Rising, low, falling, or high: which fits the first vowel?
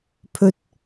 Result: high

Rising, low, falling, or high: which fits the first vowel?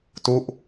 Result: falling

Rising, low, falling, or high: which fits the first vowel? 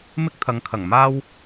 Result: high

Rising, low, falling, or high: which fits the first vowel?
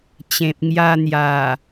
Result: low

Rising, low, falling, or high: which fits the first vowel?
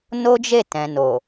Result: high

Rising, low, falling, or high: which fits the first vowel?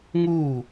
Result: falling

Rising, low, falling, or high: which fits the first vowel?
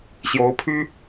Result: rising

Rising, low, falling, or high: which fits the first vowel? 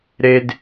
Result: high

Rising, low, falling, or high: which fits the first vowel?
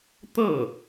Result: falling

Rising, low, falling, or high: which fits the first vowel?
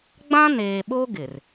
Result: high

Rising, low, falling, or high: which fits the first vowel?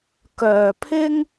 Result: low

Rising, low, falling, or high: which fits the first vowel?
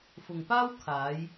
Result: low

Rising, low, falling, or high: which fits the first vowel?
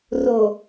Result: low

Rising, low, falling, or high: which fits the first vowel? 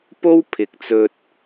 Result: high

